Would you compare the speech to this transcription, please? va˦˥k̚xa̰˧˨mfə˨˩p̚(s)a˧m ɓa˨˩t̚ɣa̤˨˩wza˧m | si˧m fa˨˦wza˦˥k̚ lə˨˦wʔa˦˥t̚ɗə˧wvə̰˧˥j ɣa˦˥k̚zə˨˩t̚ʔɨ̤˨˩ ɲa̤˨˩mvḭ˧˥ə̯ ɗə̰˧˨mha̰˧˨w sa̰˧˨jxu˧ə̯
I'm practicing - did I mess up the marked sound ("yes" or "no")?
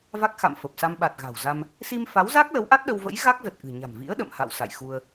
no